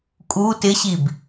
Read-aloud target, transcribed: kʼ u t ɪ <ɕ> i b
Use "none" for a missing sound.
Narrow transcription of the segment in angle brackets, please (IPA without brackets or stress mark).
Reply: ɕ